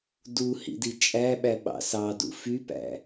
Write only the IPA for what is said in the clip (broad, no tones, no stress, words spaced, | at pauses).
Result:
du hḭdit͡ʃʼæɓæ ɓɑ̰sɑdṵ fypæ̰